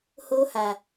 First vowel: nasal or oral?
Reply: oral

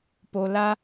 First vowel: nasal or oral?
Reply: oral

